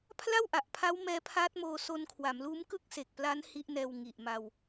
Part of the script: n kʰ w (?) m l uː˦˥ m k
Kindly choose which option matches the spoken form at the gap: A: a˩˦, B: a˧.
A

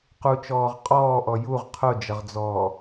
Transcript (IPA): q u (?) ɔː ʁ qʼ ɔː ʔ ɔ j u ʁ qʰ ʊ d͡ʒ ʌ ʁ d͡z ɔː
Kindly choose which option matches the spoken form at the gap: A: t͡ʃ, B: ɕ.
A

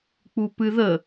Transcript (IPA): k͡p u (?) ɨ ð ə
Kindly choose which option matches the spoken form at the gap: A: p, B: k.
A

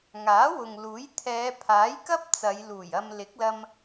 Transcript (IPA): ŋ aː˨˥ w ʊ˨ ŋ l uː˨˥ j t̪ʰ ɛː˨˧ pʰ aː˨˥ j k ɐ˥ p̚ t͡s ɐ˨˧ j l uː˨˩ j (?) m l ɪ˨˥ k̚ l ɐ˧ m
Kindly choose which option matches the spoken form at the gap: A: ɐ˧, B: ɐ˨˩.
A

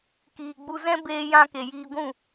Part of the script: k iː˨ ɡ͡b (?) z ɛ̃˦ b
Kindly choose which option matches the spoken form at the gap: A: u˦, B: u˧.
B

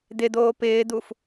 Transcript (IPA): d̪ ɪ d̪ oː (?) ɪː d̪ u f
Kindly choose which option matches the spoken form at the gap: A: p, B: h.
A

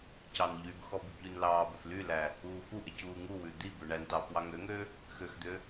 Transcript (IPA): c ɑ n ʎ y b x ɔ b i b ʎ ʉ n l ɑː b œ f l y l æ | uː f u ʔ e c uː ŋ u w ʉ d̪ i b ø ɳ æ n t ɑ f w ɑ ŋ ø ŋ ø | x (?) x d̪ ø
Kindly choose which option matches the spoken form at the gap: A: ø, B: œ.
A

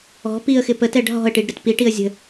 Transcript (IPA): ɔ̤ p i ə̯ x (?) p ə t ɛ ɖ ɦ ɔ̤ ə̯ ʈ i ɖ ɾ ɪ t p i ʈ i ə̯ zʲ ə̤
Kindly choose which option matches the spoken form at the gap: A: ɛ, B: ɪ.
B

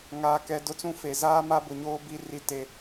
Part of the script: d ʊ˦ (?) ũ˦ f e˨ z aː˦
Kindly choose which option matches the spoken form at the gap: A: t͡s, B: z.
A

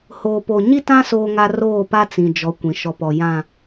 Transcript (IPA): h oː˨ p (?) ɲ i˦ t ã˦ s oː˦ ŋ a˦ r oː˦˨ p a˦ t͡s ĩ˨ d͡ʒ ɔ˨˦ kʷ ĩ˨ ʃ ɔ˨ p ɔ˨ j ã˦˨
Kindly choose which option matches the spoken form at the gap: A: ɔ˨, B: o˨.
B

